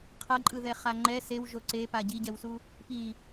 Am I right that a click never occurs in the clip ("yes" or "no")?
no